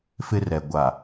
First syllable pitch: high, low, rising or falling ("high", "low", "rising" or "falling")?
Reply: high